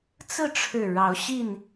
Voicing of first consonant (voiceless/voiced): voiceless